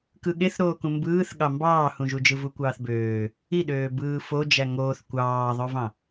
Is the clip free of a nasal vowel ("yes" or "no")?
no